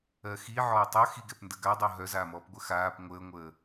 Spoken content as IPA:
ɜ x i ʕ ɔː tˤ œ x i ɡ ɛ p n d ə ɡ a dˤ o ɦ œ z aː m ɔː p ɡʷ ə x aː p ŋʷ əː ŋʷ əː

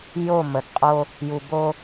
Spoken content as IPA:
j o˦˨ m ə˨ d qʼ o˦ | j u˨ b o˦

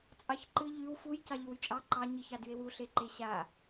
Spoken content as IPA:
t͡sʼ ɑ ç ǃ ɨ ʎ ʉ w f u j c ɑ ʎ ʉ w y t͡ʃʼ ɑ ǃ ɑ ɲ ɨ ç ɑ d y e̯ w u ɬ e ǃ e ɕ a

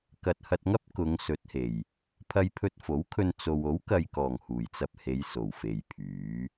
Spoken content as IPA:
k ɐ˨ t̚ h ɐ˧ t̚ ŋ ɐ˥ p̚ k ʊ˨˧ ŋ s ɵ˨˥ t̚ h e˨˩ j | pʰ ɐ˧ j pʰ ɵ˧ t̚ f o˨˥ w kʰ ɵ˧ n t͡s o˧ w o˨˥ w k ɐ˨ j k ɔː˨˩ ŋ h uː˨˩ j t͡s ɐ˧ p̚ h e˨˧ j s o˨˩ w f e˨ j pʰ yː˨˥

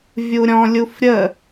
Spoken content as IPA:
vʲ u ɾʲ ɔ̃ lʲ u f ɾʲ ə

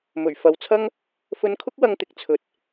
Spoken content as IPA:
m ɵ˨˩ ɥ f ɐ˨ w t͡sʰ ɐ˥ ŋ | f ɵ˧ n kʰ ʊ˥ k̚ w ɐ˧ ŋ t̪ ɪ˨˥ k̚ t͡sʰ ɵ˨ t̚

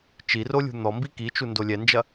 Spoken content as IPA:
t͡ʃ i r o lʲ ṳ n̪ ɔ m b i k i t͡ʃ u n d o lʲ ɛ n d͡ʒ ɐ

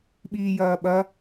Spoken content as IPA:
ɓ iː j ɐː ɓ ɐ

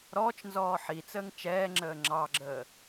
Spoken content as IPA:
ɾ ɔː t͡ʃ n z ɔː ħ i t͡s əː ŋ t͡ʃ ɛː ŋ͡ǁ əː ŋ͡ǁ ɑ ɡ͡ǁ əː

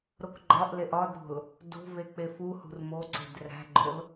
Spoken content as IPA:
ɾ o k ɡ͡ǃ ɒ ʔ l e ʔ ɒ d ɾ o̤ l | d o̤ v e k͡p e f u h ṳ r m o ǀ e̤ d r æ̤ ɡ͡ǃ o l

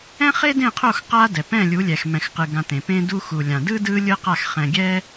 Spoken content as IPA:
ɛ̃˦ χ e˦ d ẽ˦˨ qʰ o˦˨ x q a˦ d ɛ˨ p ɛ̃˦˨ lʲ u˨˦ lʲ ɛ˨ x m ɛ̃˧ x q ɯ˧ ɡ ã˧ t ẽ˨ p ẽ˦ d u˦ x u˨ lʲ ã˨ d ɯ˦ d ɯ˦ lʲ ɯ˦ q a˦˨ x χ ɛ̃˧ ɡʲ ɛ˦

